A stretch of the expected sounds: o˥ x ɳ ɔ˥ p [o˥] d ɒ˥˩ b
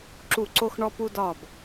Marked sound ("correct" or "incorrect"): incorrect